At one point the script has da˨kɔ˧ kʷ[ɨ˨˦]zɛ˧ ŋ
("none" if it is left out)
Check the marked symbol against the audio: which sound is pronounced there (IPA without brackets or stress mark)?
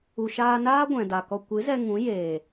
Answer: ɨ˨˦